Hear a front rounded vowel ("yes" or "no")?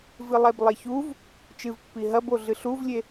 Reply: no